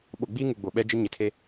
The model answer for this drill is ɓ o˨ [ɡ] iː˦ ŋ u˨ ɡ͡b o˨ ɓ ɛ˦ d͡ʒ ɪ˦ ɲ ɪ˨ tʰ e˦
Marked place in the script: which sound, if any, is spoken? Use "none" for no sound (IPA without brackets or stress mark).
ɡ͡b